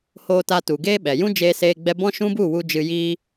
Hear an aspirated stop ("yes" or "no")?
no